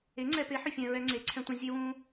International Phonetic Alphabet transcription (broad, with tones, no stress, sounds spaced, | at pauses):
e˨˥ ŋ͡ǀ ɛ˧ p e˨˥ ħ ʏ˧ fʲ ɛ̃˧ ɹ ɛ˧ ŋ͡ǀ e˨˥ ǀʰ ɛ̃˧ tʷ ẽ˧ zʲ e˧ w ũ˧